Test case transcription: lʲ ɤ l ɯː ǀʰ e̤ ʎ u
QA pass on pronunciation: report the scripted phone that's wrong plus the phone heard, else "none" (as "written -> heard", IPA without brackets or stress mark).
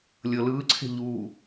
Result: none